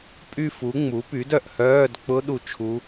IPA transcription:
pʼ y˦˨ f u˩˥ ŋ͡m u˩˥ p y˩˥ d œ˦˨ ʔ h œː˧˥˧ d k͡p ʊ˦˥ ɗ u˦˨ t͡ʃʰ u˦˥

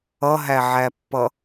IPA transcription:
ʌ ɦ æ ʕ æ pː ʌ

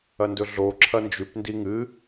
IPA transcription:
ɐ n d ɵ ɮ o ǁʰ ɐ n d͡ʒ ʉ p n d i ŋ ɨ

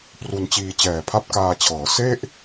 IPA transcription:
p r u˧ n t͡ɕ iː˧ t͡ɕ ɛː˨˩ pʰ a˥˩ p̚ k aː˧ t͡ɕʰ ɤː˩˦ s e˥˩ ʔ

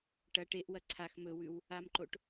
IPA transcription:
ʈ ɐ ʈ e ʔ w ɐ ǀʰ a x m ɵ w ʉ w | a m ǃ o ʈ

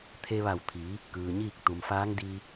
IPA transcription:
t̪ʰ e˧ ʋ a˧˩ w t̪ʰ iː˩˧ | k ɯː˩ ɲ iː˥˨ k̚ t̪ u˩ m f aː˧˥ ŋ d iː˧

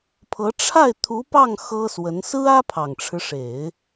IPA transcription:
pʰ ɤ˧˥ ʈ͡ʂʰ a˥˩ ɪ̯ t̪ʰ u˧˥ p ɑ˥˩ ŋ x ɤ˥ s w ə˧˥ n s ɹ̩˥ ä˥ pʰ ɑ˨˩ ŋ ʈ͡ʂʰ ɻ̩˦ ʂ e˨˩˦ ɪ̯

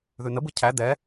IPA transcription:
ð ʉ n ə b ɯ cʰ æ d ɛ

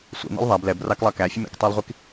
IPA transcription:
sʷ ḭ n ḭ lˠ ðˤ æ b l ɛ b r ɑ k lˠ ɑ k æ fʲ ə m ḭ k tˤ ɑ lˠ ʁʷ i k

